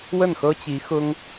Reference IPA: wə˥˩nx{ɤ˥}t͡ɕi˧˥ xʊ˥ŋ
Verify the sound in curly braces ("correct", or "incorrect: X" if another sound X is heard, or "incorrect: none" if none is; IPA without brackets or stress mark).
correct